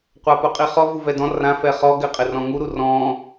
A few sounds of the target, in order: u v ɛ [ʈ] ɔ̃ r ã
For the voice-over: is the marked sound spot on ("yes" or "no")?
no